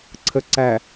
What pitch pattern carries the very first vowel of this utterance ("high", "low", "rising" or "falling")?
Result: low